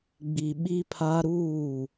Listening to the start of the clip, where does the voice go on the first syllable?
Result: low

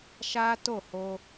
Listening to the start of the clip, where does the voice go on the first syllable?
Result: high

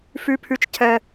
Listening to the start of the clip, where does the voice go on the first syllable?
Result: high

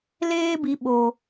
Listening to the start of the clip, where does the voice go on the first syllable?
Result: high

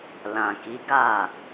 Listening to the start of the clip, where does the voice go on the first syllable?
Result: low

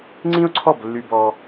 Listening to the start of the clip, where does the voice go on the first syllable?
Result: high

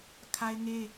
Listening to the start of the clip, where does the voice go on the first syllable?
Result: high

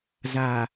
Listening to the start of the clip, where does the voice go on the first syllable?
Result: low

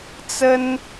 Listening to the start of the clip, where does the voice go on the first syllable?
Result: high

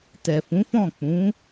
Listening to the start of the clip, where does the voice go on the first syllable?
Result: low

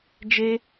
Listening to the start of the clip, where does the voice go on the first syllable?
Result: high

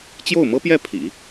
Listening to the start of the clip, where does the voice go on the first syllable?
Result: falling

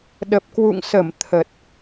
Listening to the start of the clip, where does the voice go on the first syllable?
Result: low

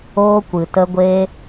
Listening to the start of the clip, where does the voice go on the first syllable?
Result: high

